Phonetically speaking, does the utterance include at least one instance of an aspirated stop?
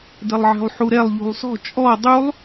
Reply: no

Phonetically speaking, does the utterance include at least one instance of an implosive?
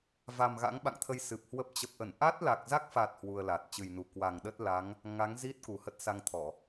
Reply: yes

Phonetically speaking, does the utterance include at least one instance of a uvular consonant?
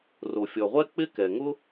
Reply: yes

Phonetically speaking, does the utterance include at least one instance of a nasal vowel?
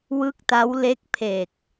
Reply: no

